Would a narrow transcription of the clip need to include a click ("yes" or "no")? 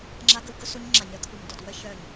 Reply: yes